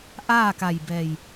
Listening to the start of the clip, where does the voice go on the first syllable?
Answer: falling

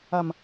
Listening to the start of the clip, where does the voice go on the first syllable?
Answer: low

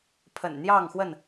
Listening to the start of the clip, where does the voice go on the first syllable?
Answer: low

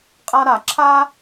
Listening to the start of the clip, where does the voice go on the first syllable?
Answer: high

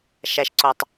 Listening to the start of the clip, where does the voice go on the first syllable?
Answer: low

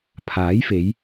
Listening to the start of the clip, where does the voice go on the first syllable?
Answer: rising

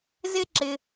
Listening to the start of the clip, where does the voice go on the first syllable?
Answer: high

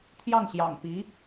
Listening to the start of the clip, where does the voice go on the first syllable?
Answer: falling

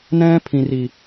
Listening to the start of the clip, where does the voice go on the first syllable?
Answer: high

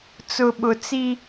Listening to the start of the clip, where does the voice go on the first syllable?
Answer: low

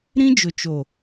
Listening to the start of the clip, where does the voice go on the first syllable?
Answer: high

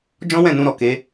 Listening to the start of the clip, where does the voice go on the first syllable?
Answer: high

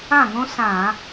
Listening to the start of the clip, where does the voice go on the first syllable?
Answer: falling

